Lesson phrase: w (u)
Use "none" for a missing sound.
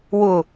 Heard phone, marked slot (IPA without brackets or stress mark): ʊ